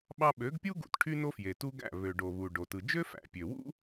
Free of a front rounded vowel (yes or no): no